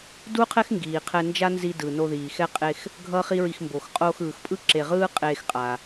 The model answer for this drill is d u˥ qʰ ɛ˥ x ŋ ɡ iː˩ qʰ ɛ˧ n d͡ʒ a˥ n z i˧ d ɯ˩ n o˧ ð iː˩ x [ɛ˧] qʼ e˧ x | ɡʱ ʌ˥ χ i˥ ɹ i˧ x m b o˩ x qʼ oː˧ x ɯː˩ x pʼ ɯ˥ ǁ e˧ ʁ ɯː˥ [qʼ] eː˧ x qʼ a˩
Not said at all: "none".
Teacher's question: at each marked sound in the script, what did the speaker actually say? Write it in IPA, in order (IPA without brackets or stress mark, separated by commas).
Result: ɛ˥, qʼ